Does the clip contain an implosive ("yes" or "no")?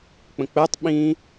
yes